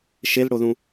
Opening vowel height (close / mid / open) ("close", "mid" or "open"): mid